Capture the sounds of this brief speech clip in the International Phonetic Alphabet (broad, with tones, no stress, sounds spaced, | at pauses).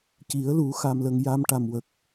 c i˨˩˦ ə̯ l u˨˩˦ x aː˨˩ m l ə˨˩ ŋ j a˧ m ʈ a˨˩ m w ə˨˩ k̚